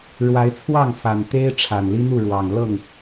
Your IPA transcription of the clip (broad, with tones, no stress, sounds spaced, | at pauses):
ɻ w a˨˦ ɪ̯ t͡sʰ w ɑ˥˨ ŋ f a˨˩ n t̪ e˦ ɪ̯ ʈ͡ʂʰ a˨˩ n l i˦ n̪ u˥˨ ɻ w ɑ˨˩ ŋ l ɤ˥˨ ŋ